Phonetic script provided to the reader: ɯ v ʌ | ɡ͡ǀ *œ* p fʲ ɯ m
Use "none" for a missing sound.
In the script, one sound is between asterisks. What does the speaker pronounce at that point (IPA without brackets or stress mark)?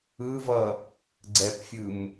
ɛ